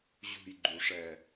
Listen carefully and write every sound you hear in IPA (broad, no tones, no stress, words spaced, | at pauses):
ʑṳjɡ͡ǃuʂɛ